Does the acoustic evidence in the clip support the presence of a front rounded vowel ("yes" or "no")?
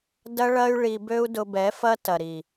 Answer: yes